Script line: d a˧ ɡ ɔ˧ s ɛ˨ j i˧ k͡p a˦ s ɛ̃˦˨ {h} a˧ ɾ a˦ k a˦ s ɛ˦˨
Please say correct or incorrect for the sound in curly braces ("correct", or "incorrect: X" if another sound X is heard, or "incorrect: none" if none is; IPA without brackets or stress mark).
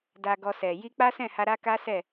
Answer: correct